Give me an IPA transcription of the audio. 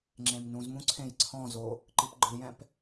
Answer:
ŋ͡ǁ ẽ m n ũ z m ũ ǀʰ ẽ j ǀʰ ɔ̃ z o | ǃ i p ɡ͡ǃ ɯ j ɛ̃ p

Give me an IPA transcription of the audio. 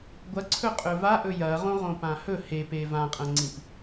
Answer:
ɡʷ ɐ ǀʰ ɵ qʼ ɵ v a ʔ ɵ j ɐ ʁ õ ʁ õ p ã h ɵ h e p e v ã qʼ ɐ̃ ŋ͡ǀ ĩ p

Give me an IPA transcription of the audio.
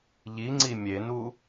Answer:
ʎ i ŋ͡ǀ i mʲ e n u

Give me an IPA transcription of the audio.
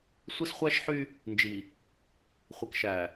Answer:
sʷ i˦ s χʷ æ˦ ʃ ħ y˦ | n d͡ʒ i˨ | χʷ i˨ k ʃ æ˨

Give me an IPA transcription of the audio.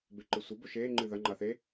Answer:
b e ǃ ɨ sʷ ɐ b o ʃ eː ŋ͡ǃ ɨː ð ɐ ŋ͡ǃ a θ e

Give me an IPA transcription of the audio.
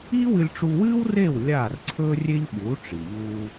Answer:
iː˥ w ɨ˧ lʲ ʈ͡ʂ u˧ w ɨː˥ w r eː˥˩ w lʲ aː˥˩ r ǀʰ ɵː˥ rʲ e˥ ʎ ɓ uː˩˥ ʈ͡ʂ i˩ ʎ uː˧

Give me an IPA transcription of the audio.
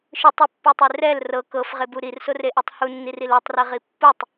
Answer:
ʃ ɯ tˤ u pː u tˤ e r ɛ l r ɤ k ɤ f ʁ e b u ɾ i r s o r e ʔ e tˤ h u nː i r i l o tˤ r ɛ ʁ i pː u tˤ

